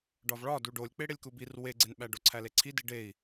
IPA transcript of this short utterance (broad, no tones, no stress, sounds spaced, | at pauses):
ɖ ɒ v ɭ ɒ d u ɖ o lʲ k͡p e ɽ e lʲ k u b i r w e ɡ͡ǀ e n ɓ æ ɖ o ǀʰ æ l e ǀʰ i d i ɖ e i̯